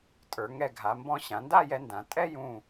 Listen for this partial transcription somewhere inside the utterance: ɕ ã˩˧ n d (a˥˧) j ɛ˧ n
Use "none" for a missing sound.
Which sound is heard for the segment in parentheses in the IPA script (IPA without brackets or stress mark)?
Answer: a˥˧